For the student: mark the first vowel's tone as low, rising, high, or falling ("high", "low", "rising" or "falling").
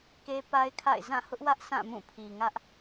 high